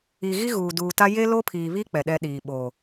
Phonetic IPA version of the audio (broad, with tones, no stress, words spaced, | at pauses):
i˨ ɣi˦ɣuː˨duː˨ta˦ je˦lo˦pʰiː˨βi˦ k͡pɛ˨ɗɛ˦ɗiː˨ ɓoː˨